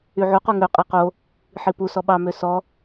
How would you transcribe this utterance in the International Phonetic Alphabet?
y ʕ u q u ŋ ø qʼ æ q o | ħ i p u s ɔ ɓ ɑ m ø s ɔ

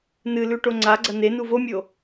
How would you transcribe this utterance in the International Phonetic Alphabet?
n ɨ l ʉ ʈ o ŋ͡ǀ a ɡ͡ǀ ɐ n e n u v o mʲ o

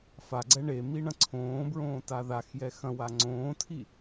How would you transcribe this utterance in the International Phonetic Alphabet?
f a ɡ͡ǀ ɛ ɳ e m i ɳ ɐ̃ ǀʰ õː b ɹ õː t a ð a x j ɛ x ɐ̃ w a ŋ͡ǀ õː tʰ i

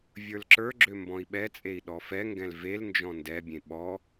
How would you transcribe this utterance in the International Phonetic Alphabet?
vʲ ə˞ l ǁ ə˞ ɡ͡ǁ ø m b ɔ̃ i̯ ɓ ɛ t͡sʼ e i̯ ɗ ɔ f ɛ ŋ ɡ ɛ̃ l v e l n d͡ʒ ɔ̃ n d ɛ bʲ ẽ ɓ ɔ

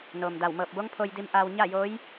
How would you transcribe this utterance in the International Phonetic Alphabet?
n oː˩ m d a˧˩ w m ɤː˧˩ p̚ b o˧˥ ŋ pʰ o˧ j d i˧ m ʔ aː˧ w ɲ a˥˨ j oː˧˥ j

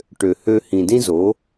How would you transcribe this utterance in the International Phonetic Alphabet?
ʈ ø˨ h ø˧ h ĩ˨ d ĩ˦ z o˨˦

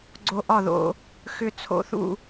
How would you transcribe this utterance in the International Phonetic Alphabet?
ɡ͡ǀ o˧ ʔ ɒ˦˨ ð o̰˧ | x ʏ˧ t͡sʰ o̰˧ θ ṵ˦˨

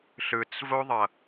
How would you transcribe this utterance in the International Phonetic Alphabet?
ɬ ɯ t͡s v o ðˤ ʌ

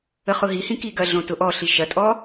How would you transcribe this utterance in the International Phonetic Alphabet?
ə χ ʊ ɦ i h ĩ k i ɡ ɐ ɮ õ t ʊ ʔ ɔ ɬ i ʃ ɐ tʼ ɔ

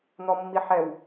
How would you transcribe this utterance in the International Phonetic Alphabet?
n̪ ɔ mː i ħ ɛ w

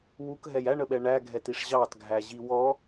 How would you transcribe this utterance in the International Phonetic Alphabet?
w u k ɦ ɛ j æ ɳ ə ɓ ɛ ɳ æ ɡʱ ɛ t i ʂ ʑ ɑ t ɡʱ æ ʑ i w ɔ

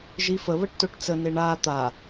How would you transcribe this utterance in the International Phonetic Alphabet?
ʒ i f ə β ə ʈ t o ʈ t͡s ə n e ɳ a t̪ a

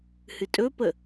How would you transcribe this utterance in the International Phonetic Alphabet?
h ɨ tʼ ɵ p ə

